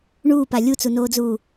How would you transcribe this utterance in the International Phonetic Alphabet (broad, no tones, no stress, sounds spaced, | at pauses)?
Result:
ɳ uː p a lʲ u t͡s u n oː d͡z uː